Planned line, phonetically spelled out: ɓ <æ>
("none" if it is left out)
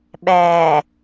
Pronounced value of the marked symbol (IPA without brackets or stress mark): æ